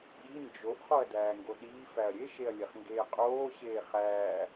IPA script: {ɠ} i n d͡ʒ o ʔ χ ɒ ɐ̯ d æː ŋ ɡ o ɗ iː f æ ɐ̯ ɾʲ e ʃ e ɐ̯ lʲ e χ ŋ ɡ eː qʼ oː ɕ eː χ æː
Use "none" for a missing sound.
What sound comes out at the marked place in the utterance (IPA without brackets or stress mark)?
ɠ